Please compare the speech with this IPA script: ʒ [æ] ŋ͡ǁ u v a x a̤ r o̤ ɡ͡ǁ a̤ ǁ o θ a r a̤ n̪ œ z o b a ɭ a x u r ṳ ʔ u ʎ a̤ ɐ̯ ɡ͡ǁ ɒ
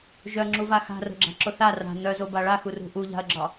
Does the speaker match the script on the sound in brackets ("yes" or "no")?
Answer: no